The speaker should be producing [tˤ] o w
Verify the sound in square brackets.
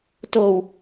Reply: incorrect: t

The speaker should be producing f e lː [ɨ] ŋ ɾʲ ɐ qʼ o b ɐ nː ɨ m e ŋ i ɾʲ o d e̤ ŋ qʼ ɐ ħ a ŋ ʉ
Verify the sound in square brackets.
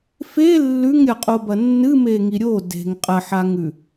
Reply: incorrect: ʉ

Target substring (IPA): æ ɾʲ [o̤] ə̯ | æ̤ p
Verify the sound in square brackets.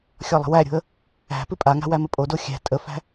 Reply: correct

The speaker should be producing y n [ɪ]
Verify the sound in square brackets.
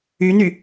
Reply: incorrect: y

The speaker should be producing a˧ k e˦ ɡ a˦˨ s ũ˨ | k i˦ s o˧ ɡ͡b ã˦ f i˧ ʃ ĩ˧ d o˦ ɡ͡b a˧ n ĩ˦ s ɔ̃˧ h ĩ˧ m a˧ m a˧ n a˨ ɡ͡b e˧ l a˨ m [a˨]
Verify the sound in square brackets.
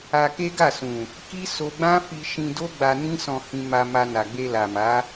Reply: incorrect: a˨˦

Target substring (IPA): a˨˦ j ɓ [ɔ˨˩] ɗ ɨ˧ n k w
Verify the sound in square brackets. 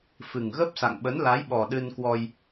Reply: correct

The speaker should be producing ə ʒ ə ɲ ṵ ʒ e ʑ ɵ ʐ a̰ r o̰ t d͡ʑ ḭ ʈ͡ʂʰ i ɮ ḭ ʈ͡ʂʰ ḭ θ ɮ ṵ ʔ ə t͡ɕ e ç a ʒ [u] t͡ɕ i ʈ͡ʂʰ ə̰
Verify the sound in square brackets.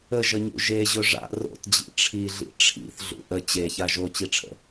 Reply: incorrect: o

